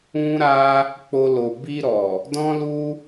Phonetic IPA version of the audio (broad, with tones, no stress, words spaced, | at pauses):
ũ˦ ɾa˦ | k͡po˧lo˨ bi˧ɾɔ˨ | dɔ̃˦lu˦